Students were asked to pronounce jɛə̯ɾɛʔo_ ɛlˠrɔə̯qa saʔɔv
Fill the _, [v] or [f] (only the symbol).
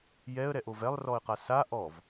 v